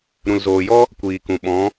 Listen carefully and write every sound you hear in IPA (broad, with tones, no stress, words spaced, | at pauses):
ɾũ˨lzoː˨jɔ˦ | kʷiː˨kũ˨ ɓɔ̃˨˦